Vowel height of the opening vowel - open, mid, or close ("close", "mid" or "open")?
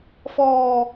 mid